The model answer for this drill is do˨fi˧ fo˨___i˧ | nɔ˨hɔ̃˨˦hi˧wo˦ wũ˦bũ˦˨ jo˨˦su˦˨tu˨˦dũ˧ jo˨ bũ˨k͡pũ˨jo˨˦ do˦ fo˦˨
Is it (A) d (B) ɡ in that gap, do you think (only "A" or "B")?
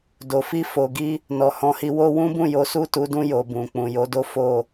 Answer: B